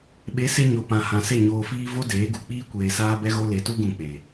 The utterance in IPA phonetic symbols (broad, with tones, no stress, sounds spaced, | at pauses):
ɓ e˨˦ s e˧ ɲ o˨ p ã˨ h ã˨ s e˦˨ ɲ oː˧ f iː˦ v o˦ d eː˨˦ ɡ u˨ k͡p iː˦ kʷ eː˧ s aː˦ b ɛ˦ ɣ o˦ l e˧ t u˦ ɡ ũ˧ k͡p e˨